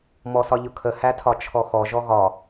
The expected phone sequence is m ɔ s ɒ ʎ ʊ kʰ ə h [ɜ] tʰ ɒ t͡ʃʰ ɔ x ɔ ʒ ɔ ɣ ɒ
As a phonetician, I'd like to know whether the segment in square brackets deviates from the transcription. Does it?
yes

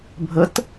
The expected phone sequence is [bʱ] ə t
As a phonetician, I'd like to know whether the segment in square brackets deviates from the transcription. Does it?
no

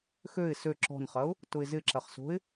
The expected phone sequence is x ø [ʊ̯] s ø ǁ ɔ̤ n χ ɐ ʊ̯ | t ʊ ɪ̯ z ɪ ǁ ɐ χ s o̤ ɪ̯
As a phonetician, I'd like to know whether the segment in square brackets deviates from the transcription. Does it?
yes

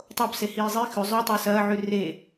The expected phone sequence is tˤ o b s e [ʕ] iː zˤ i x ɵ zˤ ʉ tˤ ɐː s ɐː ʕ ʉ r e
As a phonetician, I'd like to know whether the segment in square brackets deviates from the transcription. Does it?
yes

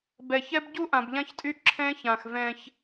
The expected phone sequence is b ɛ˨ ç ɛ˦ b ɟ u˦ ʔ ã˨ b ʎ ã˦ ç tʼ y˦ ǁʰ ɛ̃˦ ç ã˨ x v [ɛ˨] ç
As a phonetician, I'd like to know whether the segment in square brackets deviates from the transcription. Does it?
yes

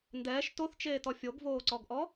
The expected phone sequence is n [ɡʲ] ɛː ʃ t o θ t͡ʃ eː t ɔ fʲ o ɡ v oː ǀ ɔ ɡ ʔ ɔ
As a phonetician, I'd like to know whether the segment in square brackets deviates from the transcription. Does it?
yes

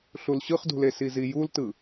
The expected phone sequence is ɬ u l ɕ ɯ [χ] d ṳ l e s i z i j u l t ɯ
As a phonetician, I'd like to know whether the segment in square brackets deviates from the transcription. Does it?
no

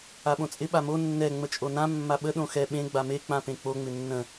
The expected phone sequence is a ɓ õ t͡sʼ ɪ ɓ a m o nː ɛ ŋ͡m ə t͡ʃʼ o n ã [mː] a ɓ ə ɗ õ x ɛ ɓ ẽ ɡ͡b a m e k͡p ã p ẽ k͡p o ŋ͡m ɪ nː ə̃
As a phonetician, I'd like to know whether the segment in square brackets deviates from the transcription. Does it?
no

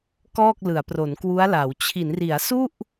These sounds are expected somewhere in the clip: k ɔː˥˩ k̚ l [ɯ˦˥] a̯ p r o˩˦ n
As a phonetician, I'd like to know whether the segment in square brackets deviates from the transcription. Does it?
yes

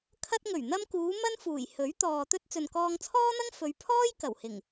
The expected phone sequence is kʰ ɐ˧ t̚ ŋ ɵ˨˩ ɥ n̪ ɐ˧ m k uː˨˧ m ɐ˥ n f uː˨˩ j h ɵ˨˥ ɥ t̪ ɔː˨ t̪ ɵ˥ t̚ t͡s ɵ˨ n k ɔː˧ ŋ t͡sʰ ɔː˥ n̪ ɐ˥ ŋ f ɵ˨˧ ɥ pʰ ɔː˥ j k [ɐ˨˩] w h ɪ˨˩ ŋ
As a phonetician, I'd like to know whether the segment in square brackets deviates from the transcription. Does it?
no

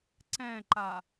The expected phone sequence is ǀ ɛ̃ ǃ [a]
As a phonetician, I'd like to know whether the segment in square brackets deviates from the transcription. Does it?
no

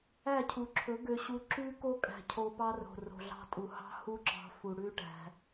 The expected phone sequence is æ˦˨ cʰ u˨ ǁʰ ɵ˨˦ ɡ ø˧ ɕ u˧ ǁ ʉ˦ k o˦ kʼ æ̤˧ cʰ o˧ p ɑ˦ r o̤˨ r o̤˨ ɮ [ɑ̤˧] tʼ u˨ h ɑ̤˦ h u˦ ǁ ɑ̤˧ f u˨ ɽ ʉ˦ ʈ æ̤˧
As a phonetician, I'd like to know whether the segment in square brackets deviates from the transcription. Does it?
no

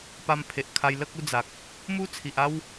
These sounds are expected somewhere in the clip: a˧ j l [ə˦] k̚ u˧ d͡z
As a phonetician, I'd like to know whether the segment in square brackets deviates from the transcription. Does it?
no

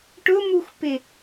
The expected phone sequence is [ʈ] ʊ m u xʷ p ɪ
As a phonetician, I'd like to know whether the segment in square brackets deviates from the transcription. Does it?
no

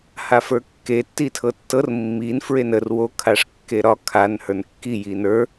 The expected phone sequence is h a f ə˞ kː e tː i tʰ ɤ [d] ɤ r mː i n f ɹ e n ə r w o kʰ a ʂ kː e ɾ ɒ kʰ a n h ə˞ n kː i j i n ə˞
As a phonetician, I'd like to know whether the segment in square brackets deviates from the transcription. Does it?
yes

